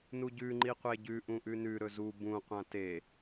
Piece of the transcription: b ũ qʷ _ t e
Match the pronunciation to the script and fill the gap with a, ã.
ã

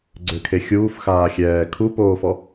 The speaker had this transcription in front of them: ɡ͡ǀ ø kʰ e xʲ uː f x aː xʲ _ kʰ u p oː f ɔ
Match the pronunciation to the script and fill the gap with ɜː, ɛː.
ɛː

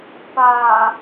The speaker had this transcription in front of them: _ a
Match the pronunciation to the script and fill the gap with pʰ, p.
p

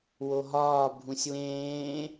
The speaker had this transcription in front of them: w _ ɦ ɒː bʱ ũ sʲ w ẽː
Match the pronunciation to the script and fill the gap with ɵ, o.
o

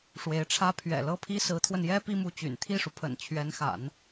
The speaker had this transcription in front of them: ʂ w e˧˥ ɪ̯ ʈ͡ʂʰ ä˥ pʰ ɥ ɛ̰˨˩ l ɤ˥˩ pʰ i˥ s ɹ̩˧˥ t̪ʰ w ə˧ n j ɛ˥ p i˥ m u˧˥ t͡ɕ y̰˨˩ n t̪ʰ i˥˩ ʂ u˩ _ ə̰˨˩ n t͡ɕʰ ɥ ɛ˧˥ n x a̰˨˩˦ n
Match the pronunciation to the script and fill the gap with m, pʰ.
pʰ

